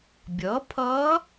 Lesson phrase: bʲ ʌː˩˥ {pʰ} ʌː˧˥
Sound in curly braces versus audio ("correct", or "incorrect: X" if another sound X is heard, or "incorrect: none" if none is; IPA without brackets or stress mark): correct